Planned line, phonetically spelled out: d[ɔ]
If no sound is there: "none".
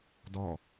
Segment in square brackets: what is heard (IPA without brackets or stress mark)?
ɔ